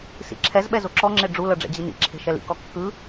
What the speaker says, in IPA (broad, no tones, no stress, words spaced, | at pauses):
sḭǁʰɛzɓɛ zoǁɔŋ͡ǁe ɖ͡ʐulɤ ɖ͡ʐɛ̰d͡ʑinḭǁʰe̤ ʃɛlḭkɔ kːɯ